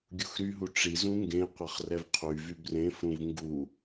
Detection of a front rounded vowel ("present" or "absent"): present